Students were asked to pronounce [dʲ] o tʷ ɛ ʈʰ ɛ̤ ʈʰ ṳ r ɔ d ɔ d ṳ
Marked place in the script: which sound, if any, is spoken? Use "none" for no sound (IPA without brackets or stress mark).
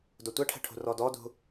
d